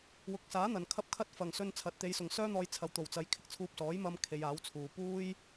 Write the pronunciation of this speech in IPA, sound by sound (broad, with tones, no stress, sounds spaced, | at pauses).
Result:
w ʊ˨˥ k̚ s aː˨˥ n̪ ɐ˨˩ n kʰ ɐ˥ p̚ kʰ ɐ˥ t̚ f ɐ˨˩ ŋ s ɵ˧ n t͡sʰ ɐ˨ t̚ t̪ e˨˧ j s ʊ˨ ŋ s œː˥ n̪ ɔː˧ j t͡sʰ ɐ˨ w t̪ o˨˩ w t͡s ɐ˨˧ j kʰ ɪ˧ k̚ t͡sʰ uː˧ p̚ s ɔː˨˥ j m ɐ˧ m kʰ e˨˧ j aː˨˥ w t͡sʰ uː˨ p uː˥ j